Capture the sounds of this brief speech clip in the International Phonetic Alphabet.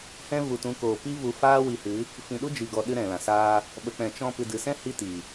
hɛ̃˦ vu˨tũ˨˦koː˨ pi˦vu˧ faː˦wi˧hɨ˨˦ | fĩ˨ɗu˦ d͡ʒi˨ɡɔ˨ ɗɨ˦ɾɛ̃˨lã˨ saː˧ | ɓə˨k͡pɛ̃˨ t͡ʃɔ̃˧ pɨ˨dɨ˨sɛ̃˦ hi˦ti˨

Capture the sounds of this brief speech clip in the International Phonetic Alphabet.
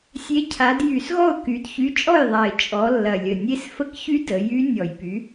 sʲe˨˥ cʰa˩˧d jy˧˩˧sɣɔ˥˩ʊ̯ ky˩˧dçy˨˥t͡ʃʼɔ˥˩jðˤa˨˩ɪ̯ t͡ʃʼɔ˩˧ lːɐ˨˩lʲə˨˩nʲe˦˥s fə˦˥kçy˦˥ də˩˧jy˦˥ nʲɔ˧˩˧jpy˨˥

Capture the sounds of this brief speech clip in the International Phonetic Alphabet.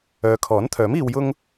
œː˨˧kʰɔː˨˥nt̪ʰœː˨˥miː˧w jʊ˥ŋ

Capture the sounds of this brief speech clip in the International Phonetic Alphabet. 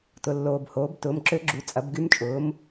tʊ˨ lːoː˨bhoː˩˥b tʊː˩˥mǁø˧˥ɡ͡ǁu˩˥ t͡sʼɐ˩˥bɡy˧˥mt͡ʃʼʊː˩˥m

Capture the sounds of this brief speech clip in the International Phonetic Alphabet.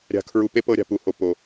ɾʲa̤˨kʰɹu˨pe˦ pɤ˦ɾʲa̤˨pu˨ho˨ po˨

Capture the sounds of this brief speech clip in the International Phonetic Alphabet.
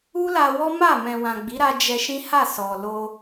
u˦la˧wɔ˦ma˦˨ mɛ̃˨wã˨ ɡ͡bi˨˦ɾa˧ d͡ʒɛ˧ʃĩ˦ha˦˨ sɔ˨ lo˧

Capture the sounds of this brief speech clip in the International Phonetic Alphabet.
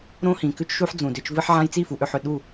ɾõ˦hĩ˨kʉ˦t͡ʃʃu˦ħ d͡zũ˨dʏ˧t͡ʃvɨ˦ħʕã˦j t͡si˦˨fu˨ʔʏ˦˨ħʏ˨ ɗu˦˨

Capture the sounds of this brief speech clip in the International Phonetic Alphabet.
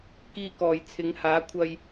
kiː˧kɔː˨˩j t͡sʰɪ˨˧ŋhaː˨˥ kʷʰɐ˧j

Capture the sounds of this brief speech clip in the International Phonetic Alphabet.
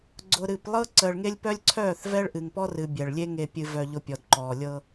ɡ͡ǀʊ˨ɾɨ˨plˠɤ˦ ǀəː˨ɭŋe˦lʲpœ˦lʲǀʰœː˦˨θ vɛ˦ɭ ʔɨ˨ŋpɔ˦rɨ˨ bʲɛ˨ɭlʲe˦ ŋe˨pʲɨ˨ vœ˨ʎʊ˨ pʲɔ˨dǃɔː˨ lʲɤ˦

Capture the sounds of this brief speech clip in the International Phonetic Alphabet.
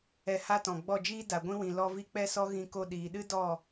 ɛ˧ha˦tɔ̃˨ ɡ͡bɔ˦˨d͡ʒiː˦ da˨ɡʷĩ˦wĩ˨ lɔ˧vi˧ k͡pɛ˦sɔ˦ ɣĩ˧ ko˧ ɗiː˨ɗɨ˦ dɔ˦˨

